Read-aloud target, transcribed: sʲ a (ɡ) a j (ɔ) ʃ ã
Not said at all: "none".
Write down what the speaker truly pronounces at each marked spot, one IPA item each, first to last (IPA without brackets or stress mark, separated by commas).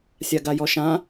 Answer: ɡ, ɔ